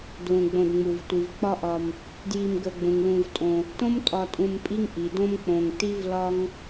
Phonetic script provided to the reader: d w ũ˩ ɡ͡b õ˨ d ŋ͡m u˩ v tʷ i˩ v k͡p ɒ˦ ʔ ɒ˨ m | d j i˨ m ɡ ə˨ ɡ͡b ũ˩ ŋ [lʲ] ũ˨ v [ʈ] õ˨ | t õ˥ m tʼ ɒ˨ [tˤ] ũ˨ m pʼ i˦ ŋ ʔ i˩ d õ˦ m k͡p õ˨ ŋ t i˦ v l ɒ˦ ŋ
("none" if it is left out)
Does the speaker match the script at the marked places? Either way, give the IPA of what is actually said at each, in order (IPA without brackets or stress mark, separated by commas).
l, tʼ, tʼ